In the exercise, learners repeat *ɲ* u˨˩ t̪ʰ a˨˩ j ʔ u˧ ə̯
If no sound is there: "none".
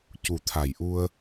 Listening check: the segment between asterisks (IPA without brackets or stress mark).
c